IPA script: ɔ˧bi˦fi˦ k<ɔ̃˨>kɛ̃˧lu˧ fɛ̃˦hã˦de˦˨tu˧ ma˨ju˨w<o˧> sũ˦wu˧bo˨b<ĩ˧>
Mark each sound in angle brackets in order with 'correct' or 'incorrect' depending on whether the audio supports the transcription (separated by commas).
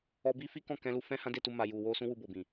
incorrect, correct, incorrect